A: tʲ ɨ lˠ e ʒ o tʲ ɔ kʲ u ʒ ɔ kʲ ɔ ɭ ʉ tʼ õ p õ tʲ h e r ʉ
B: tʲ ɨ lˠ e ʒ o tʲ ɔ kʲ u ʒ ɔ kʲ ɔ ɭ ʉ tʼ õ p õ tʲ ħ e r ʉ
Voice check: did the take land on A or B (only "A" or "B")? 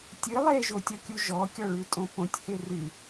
A